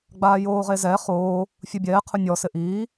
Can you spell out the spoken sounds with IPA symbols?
ɡ͡b aː j oː ʁ e z ɛ χ oː | fʲ u bʲ ɛː qʰ ʊ nʲ ɔ s ɪ ʔ iː

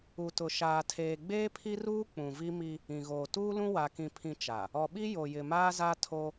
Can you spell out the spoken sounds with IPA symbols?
u˨ t ʊ˨ ʃ aː˨ tʰ eː˨ ɡ͡b eː˦ pʰ i˦ r uː˦ k͡p ũ˨ v i˦ m i˦ | ĩ˨ ɣ oː˨ t uː˦ l ũ˦ w a˨ k ĩ˨ pʰ ĩ˨ t͡ʃ a˨ | ɔ˨ ɓ i˦ j o˨ j ɪ˨ m aː˦ z a˦ tʰ o˦

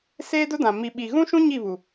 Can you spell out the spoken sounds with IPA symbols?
s eː˦ d ʊ˦ d ã˨ m i˨ ɓ i˨ ɣ ũ˦ ʃ ũ˦ ɲ i˦˨ β u˨

